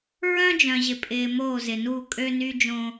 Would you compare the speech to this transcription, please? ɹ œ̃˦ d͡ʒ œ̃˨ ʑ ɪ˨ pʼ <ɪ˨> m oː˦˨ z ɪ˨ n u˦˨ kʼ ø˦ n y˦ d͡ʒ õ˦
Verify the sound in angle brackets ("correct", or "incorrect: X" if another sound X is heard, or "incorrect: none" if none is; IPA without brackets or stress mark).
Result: incorrect: ɪː˨